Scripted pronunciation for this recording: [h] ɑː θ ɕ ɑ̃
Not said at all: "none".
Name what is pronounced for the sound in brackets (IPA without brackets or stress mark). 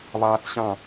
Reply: β